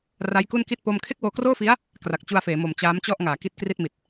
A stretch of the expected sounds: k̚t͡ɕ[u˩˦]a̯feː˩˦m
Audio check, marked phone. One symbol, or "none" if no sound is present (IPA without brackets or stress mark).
u˧